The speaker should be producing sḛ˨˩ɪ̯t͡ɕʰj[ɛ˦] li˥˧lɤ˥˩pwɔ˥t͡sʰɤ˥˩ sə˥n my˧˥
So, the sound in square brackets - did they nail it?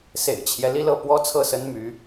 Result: yes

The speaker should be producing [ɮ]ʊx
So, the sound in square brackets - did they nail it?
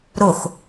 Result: no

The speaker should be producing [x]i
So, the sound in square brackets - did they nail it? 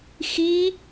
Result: yes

